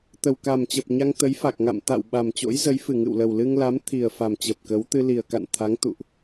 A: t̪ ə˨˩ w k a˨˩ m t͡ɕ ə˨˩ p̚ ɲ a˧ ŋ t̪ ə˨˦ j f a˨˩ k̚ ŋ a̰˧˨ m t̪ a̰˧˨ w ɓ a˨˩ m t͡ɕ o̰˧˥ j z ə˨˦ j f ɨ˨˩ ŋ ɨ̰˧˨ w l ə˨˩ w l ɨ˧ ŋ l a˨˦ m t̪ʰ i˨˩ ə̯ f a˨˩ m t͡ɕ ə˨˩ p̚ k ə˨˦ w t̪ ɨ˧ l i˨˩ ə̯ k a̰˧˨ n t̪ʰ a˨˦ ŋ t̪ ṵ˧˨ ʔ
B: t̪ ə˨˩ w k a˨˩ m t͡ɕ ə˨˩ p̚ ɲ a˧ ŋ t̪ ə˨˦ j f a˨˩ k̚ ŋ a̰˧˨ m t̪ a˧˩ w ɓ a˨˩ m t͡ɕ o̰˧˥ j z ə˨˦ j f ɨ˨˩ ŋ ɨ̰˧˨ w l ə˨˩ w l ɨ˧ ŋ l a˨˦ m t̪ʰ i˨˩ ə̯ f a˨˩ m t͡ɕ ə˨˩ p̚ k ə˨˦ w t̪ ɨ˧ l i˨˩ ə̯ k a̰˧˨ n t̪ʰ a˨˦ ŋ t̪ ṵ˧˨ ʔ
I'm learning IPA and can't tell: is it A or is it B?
A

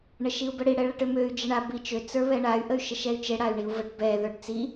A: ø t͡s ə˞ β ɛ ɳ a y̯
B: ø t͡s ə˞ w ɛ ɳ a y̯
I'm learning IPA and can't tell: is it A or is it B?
A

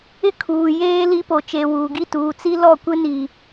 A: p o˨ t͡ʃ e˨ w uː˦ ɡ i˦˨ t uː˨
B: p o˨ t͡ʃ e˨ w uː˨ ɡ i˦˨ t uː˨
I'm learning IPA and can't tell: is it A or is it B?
B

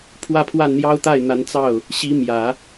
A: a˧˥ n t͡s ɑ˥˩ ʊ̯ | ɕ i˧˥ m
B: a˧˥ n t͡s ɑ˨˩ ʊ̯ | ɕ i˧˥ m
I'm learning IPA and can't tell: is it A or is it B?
A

